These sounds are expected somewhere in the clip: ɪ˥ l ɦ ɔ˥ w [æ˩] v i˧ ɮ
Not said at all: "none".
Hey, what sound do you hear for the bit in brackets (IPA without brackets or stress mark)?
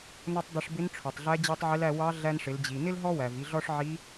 æ˩